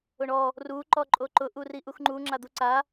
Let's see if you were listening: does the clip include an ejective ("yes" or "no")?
yes